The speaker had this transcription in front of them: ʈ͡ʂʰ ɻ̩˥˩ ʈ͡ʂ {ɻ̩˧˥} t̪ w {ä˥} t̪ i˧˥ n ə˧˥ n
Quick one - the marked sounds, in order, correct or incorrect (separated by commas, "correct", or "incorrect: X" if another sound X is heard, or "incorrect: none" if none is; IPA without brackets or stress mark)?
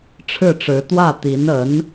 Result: correct, incorrect: ä˥˩